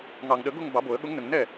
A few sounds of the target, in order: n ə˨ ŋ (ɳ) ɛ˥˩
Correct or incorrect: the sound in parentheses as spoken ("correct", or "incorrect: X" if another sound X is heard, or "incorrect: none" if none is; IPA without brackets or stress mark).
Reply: incorrect: n